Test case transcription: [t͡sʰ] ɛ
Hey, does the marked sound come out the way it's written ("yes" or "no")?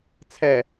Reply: yes